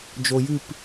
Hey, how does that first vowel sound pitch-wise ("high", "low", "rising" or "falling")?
low